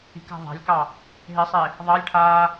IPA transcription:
i̤ k a̤ ðˤ a̤ lʲ k ɑ | ɦ e sˤ e | ðˤ ɑ lʲ ʈʰ aː

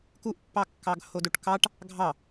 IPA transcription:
k u ʔ pː ɑ kː ɑ ɡ h o d o ʈ k ɑ ʈ | ɡʱ ɑ

